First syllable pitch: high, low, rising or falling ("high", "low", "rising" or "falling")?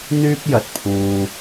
high